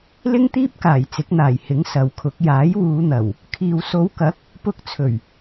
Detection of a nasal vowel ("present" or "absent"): absent